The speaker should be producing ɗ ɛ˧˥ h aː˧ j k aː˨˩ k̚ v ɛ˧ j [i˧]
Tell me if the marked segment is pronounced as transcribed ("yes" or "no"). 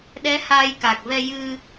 no